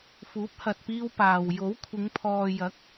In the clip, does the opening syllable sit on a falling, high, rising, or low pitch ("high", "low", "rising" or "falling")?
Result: rising